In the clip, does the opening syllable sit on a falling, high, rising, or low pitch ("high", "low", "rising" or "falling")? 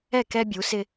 falling